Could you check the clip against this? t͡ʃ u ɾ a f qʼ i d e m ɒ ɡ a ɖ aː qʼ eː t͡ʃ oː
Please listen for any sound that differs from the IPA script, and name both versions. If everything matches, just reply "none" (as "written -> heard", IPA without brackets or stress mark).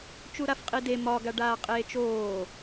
none